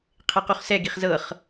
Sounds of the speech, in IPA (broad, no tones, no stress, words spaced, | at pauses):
qʰequχsɛɡiχ zɤχ